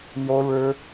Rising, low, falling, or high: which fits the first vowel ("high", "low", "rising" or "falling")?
high